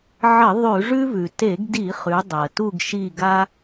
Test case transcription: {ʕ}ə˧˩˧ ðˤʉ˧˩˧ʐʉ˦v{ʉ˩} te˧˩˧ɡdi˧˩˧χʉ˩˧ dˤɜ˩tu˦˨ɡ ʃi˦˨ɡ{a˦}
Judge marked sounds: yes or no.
yes, yes, yes

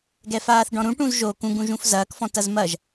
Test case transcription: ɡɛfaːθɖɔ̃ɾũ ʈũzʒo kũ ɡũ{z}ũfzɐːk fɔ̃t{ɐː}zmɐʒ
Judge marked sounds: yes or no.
no, no

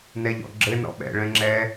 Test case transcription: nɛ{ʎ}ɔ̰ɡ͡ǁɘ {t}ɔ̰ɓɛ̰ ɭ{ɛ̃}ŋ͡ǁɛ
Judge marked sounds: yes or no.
yes, no, yes

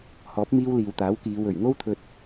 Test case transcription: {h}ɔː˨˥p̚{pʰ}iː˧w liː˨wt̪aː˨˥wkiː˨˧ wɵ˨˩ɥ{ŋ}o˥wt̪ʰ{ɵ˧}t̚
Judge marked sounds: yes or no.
yes, no, yes, yes

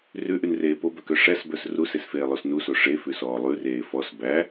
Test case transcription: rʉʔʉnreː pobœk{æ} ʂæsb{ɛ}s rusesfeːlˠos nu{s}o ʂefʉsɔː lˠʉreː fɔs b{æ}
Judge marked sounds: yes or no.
no, no, yes, yes

